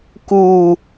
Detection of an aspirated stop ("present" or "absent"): absent